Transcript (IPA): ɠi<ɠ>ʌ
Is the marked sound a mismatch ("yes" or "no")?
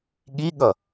no